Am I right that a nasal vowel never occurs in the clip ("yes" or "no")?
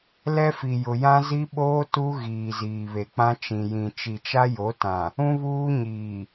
no